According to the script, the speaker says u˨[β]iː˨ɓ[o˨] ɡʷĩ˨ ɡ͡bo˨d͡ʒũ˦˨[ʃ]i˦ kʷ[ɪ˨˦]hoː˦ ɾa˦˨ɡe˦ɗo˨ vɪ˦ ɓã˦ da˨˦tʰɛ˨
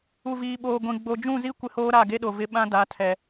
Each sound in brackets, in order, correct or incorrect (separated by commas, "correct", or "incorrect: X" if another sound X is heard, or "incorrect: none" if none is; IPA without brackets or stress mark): incorrect: v, incorrect: oː˨, incorrect: z, incorrect: ɪ˦